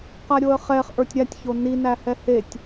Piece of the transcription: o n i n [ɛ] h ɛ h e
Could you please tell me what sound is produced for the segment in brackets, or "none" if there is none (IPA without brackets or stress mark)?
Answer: æ